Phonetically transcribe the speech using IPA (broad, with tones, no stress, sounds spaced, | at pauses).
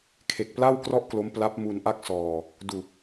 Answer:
kʰ e˨˩ k̚ p l a˥˩ w k r ɔ˥˩ ʔ k l o˦˥ m p l a˦˥ p̚ m u˧ n ʔ a˥˩ k̚ s ɔː˧ | d u˨˩ k̚